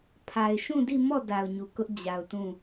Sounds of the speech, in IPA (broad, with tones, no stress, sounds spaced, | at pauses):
pʰ a˨ ɪ̯ ʃ ũ˦˨ d i˦˨ m ɔ˦˨ d a˨ ʊ̯ ɲ u˨ k ʊ˦ ʔ d͡ʑ a˨ ʊ̯ t ũ˦˨